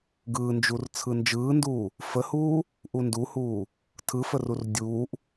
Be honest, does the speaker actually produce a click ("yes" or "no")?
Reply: no